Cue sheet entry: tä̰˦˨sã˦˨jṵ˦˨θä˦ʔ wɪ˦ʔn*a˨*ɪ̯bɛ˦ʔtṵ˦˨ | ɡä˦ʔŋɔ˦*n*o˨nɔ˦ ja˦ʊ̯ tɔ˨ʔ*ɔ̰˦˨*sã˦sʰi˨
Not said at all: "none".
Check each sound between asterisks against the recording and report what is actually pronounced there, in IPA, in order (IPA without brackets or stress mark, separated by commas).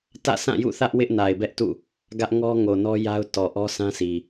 a˨, ŋ, ɔ˦